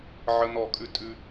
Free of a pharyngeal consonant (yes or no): no